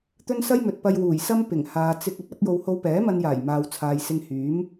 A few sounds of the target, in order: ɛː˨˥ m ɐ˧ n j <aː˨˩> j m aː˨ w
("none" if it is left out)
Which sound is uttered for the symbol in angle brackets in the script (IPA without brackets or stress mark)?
aː˨˩